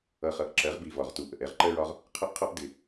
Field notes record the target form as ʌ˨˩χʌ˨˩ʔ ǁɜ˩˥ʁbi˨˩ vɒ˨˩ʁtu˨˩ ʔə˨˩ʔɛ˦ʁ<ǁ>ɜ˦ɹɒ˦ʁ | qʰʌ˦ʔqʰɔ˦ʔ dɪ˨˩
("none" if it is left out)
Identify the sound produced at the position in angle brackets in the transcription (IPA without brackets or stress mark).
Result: ǃ